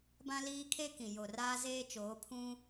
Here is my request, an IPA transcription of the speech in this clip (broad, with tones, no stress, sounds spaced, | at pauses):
b ã˦ l iː˦ kʰ e˦ k ĩ˨ j o˨ r aː˦ z eː˦ t͡ʃ oː˨˦ pʰ ũ˦